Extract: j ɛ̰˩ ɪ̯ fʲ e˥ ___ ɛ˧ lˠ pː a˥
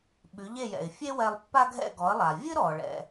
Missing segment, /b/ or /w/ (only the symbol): w